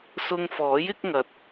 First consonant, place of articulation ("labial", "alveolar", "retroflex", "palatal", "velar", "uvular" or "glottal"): alveolar